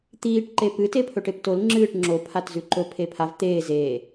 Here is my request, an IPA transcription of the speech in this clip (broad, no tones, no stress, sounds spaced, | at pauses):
t̪ iː ʈ ǃ e p ɨ t e pʰ ɵ ʈ e p t o l ŋ͡ǁ ɨː ʈ ŋ͡ǁ o pʰ a t z ʉ ǃ ɵ pʰ e pʰ a v t̪ eː z e